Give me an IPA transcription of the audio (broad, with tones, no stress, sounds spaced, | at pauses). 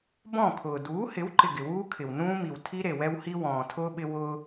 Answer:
b ɔ̃˦˨ kʰ ʊː˨ d uː˨˦ h ɪ˨˦ w ǃ ɪ˨ ɡ ɪ˨ w uː˦ kʰ ɪ˨ w n ũː˦ m i˨ w tʰ i˦ ɾ e˨ w ɛ˦ w h i˦ w ɔ̃ː˨ tʰ ʊː˦ ɓ ɪ˦ w ʊː˦